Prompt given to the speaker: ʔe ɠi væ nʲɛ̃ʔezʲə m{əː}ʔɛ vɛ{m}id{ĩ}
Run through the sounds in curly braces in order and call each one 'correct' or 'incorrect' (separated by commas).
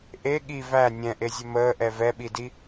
correct, incorrect, incorrect